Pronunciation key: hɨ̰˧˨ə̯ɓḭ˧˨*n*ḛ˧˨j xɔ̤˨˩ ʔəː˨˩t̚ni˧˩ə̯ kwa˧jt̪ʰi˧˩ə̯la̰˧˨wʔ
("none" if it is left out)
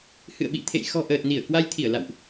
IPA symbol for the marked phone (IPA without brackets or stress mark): t̪ʰ